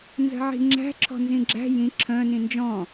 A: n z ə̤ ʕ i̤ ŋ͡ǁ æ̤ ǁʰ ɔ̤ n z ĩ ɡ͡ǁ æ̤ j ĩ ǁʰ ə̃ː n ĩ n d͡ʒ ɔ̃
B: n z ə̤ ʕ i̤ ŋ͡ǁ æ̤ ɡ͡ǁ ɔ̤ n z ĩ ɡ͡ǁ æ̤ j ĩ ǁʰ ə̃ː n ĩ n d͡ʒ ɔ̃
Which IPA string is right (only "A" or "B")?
A